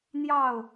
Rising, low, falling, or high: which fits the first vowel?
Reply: falling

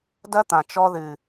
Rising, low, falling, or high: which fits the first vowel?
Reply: high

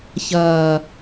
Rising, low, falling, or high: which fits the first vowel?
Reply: low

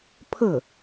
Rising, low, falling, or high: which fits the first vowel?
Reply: falling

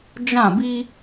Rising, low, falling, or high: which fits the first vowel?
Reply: falling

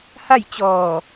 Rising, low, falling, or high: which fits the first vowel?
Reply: falling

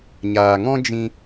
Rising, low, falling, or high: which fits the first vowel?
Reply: low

